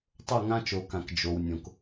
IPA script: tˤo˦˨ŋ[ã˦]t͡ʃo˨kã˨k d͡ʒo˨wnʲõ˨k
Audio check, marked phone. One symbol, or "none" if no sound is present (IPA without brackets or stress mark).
ã˦